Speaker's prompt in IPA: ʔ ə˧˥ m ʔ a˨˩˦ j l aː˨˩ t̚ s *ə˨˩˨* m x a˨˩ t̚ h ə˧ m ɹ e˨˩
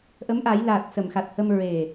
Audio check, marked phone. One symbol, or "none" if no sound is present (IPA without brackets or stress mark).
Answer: ə˨˩˨